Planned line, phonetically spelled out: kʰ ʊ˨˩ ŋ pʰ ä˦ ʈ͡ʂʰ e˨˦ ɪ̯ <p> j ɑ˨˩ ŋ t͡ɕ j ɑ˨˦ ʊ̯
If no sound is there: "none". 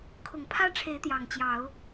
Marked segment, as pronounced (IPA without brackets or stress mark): t̪